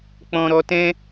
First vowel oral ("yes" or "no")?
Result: no